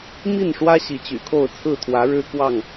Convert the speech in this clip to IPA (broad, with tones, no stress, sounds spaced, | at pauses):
m i˥˨ n ʂ w ä˦ ɕ i˨˦ t͡ɕ y̰˨˩ kʰ o˥˨ ʊ̯ t͡sʰ ɹ̩˥˨ t̪ʰ w ä˨˦ ɻ ɻ̩˦ k w ɑ˥˨ ŋ